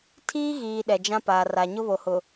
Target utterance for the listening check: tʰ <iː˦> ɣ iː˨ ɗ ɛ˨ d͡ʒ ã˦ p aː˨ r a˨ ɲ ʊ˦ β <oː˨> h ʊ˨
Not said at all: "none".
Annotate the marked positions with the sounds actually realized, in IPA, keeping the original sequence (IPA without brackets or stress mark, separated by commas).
iː˦, o˨